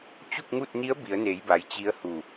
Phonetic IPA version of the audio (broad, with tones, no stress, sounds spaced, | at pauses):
t͡ɕ u˥˨ k̚ ŋ u˥˨ t̚ n i˧˥ ə̯ b i˩˧ ə̯ n e˩˧ j b a˩ j t͡ɕ i˧˥ ə̯ h u˧˩